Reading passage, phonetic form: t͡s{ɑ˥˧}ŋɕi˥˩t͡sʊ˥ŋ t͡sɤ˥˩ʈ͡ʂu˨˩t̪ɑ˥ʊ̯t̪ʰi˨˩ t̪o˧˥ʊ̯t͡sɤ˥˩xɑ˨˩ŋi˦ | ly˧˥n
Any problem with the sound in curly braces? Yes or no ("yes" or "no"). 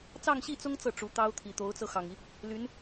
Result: no